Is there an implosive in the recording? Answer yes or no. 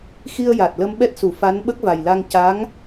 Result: yes